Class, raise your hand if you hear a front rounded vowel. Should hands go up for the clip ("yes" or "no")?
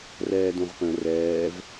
no